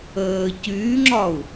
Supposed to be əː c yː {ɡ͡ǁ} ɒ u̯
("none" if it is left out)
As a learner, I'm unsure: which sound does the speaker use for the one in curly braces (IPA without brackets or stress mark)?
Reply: ŋ͡ǁ